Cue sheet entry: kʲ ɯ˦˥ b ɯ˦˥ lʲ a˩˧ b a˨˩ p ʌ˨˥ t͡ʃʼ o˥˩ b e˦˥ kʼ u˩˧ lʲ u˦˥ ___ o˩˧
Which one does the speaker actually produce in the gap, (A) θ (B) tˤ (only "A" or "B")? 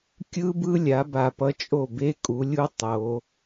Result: B